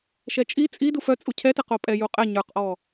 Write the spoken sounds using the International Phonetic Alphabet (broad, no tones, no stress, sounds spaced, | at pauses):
ʃ ɛ t͡ʃʼ i t͡sʼ i d u f œ t͡sʼ u cʰ ɛ t ɛ q o pʼ ɛ j u qʼ ɛ ɲ ə˞ q ʔ ɔ